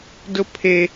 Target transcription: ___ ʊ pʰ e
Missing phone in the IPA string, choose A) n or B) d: B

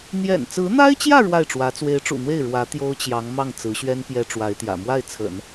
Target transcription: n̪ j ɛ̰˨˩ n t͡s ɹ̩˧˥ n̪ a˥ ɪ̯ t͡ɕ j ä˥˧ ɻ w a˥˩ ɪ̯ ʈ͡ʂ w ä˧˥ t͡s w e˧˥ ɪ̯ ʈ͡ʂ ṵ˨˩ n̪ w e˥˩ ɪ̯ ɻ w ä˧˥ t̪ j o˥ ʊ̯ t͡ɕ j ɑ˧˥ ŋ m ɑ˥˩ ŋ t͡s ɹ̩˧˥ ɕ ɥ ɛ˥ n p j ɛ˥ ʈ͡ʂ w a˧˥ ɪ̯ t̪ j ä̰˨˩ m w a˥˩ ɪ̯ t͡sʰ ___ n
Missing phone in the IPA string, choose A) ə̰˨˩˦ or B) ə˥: A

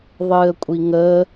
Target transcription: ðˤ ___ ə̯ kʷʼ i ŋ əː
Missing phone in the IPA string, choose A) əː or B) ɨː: B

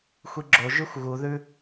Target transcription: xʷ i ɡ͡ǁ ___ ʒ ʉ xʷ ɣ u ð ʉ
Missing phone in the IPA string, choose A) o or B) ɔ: A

